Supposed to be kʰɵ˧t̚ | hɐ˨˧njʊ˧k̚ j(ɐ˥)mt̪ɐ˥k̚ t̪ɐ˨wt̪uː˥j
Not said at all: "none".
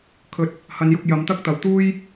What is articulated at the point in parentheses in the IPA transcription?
ɐ˨˧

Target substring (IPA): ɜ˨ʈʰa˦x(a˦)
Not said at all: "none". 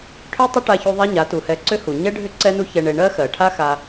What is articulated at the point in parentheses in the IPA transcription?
a˧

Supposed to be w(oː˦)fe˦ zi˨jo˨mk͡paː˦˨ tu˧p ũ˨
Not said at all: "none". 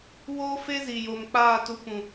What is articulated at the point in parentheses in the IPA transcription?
oː˦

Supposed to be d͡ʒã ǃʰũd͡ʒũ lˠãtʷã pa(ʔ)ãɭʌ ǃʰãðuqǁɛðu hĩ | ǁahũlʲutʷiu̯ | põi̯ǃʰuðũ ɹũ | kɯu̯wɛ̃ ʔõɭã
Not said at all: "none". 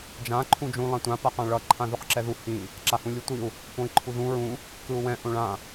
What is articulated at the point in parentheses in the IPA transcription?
q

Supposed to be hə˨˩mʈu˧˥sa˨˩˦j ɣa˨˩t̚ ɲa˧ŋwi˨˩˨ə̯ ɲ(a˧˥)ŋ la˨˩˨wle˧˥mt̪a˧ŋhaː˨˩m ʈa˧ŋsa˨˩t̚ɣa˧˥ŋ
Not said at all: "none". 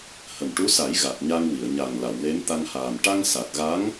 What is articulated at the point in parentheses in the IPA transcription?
a˨˩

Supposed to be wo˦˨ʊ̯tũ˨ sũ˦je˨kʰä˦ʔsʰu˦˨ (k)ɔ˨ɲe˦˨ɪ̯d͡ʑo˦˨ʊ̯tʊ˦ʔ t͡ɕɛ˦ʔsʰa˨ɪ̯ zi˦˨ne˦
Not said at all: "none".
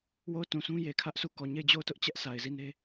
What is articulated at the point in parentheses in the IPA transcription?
k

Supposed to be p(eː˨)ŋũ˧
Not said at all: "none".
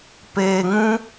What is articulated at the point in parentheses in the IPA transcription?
eː˨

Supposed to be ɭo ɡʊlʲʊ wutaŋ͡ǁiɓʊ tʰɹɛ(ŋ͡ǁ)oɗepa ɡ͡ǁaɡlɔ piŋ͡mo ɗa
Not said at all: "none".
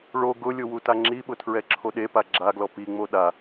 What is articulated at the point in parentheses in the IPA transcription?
ǁʰ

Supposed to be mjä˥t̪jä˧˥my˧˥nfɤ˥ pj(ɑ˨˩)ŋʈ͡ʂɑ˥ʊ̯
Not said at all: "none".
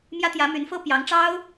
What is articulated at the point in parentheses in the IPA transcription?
ɑ˧˥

